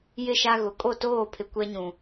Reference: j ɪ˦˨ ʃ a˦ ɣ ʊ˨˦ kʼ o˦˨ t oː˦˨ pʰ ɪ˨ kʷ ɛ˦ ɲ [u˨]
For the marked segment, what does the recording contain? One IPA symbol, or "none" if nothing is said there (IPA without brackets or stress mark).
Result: ũ˨